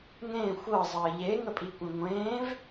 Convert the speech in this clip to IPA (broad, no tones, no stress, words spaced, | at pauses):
ŋẽ xʷɤzˤəː ʎeŋəpʼikʷẽ ŋʷẽːv